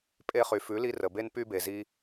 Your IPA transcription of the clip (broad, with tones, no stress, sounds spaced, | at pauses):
pʼ e˧ χ y˨ f ʉ˨˦ l i˧ r ə˨ b e˧ n p y˧ b e˨ z i˧